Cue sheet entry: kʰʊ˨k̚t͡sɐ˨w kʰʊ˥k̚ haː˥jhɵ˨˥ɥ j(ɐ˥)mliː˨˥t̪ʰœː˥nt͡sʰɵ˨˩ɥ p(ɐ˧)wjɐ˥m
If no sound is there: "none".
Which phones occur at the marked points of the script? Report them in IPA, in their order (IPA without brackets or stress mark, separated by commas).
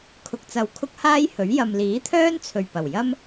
ɐ˨, ɐ˨˩